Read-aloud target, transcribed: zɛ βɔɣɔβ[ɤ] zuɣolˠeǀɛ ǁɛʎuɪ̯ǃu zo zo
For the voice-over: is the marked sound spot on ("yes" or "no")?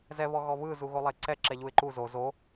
no